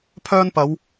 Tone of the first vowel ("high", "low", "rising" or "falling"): high